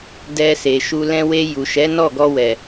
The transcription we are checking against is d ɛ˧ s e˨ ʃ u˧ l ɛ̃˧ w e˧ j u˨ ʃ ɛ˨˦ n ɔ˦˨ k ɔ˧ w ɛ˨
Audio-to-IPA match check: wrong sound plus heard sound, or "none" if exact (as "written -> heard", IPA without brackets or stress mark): k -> ɡ